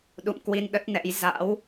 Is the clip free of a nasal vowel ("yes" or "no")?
yes